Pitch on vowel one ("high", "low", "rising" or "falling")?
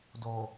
low